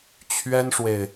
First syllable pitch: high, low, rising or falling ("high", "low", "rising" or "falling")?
high